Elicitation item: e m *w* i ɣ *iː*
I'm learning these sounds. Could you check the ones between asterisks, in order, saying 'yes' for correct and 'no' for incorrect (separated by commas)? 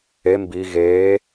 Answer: no, no